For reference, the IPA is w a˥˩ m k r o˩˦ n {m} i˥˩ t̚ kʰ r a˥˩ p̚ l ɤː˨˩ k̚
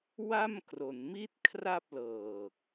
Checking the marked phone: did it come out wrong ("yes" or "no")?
no